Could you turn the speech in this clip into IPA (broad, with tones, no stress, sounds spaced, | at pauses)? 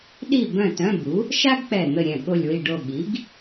ɗ i˥˨ b œ̃˥˨ t œ̃˧˥˧ b u˩˥ | ʃ a˥ ɡ k͡p ɛ˧˩ n̪ ə˥˨ ɾʲ ɛ̃˥˨ ɠ o˧˩ lʲ w i˧˩ ɖ o˧˩ ɠ i˩˥ ɡ